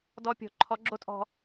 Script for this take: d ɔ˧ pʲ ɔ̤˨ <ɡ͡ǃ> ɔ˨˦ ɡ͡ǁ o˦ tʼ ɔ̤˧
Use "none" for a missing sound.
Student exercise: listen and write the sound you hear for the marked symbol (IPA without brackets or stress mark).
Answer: ǃʰ